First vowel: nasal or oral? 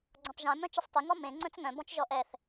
nasal